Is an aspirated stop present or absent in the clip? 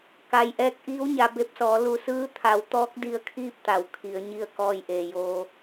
present